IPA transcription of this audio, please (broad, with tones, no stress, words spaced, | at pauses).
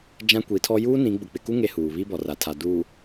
d͡ʒã˦kʷi˨˦tʰɔ˦ juː˦nĩ˨˦ ɡ͡bʊ˨k͡pɪ˨ku˦ ŋe˦huː˨ βi˦bɔ˨ra˨tʰa˨ duː˨